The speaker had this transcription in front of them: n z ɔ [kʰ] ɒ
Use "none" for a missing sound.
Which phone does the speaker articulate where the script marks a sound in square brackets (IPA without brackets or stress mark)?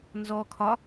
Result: kʰ